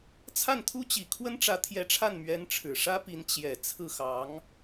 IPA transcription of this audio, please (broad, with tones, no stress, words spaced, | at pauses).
t͡sʰa˥˩nt̪ʰu˥t͡ɕi˨˩ kʰwə˥nʈ͡ʂä˧˥t̪ʰjɛ˧˥ʈ͡ʂʰa˥˩n mɥɛ˧˥nʈ͡ʂʰɻ̩˨˩ʂä˥pi˧˥n t͡ɕjɛ˨˩ t͡sʰɹ̩˥˩xɑ˧˥ŋ